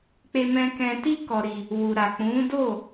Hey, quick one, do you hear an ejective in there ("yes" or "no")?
no